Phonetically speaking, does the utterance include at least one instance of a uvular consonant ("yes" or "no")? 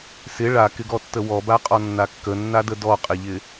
yes